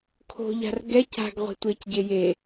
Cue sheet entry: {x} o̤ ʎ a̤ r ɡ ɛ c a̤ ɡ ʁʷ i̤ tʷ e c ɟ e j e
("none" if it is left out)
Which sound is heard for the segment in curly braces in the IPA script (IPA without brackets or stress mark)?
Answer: kʰ